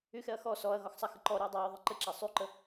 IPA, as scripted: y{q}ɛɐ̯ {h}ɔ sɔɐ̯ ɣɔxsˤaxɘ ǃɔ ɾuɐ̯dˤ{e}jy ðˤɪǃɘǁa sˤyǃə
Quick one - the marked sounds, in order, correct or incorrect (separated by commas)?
incorrect, incorrect, incorrect